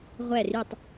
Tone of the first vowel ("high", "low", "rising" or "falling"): falling